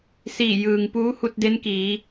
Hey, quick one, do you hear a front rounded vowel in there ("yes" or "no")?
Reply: no